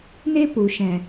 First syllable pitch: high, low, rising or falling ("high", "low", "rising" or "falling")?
high